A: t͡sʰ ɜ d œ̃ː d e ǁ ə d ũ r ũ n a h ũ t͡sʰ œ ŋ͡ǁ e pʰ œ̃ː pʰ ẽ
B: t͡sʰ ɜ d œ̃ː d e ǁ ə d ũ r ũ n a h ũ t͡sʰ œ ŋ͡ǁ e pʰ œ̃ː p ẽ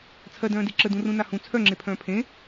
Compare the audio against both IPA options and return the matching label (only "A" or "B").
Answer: A